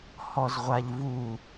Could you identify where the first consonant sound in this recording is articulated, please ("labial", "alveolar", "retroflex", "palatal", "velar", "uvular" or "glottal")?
glottal